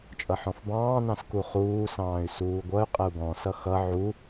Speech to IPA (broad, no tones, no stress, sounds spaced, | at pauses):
t͡ʃʼ ʌ ħ ɔ̃ f b ɑ̃ː n ɑ̃ s k u χ uː s ɑ̃ː y̯ s uː ɡʷ ʌ y̯ qʼ ə u̯ ɡ ɔ̃ s ʌ x ʌ ʕ u